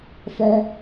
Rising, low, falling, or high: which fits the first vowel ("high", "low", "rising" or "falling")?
high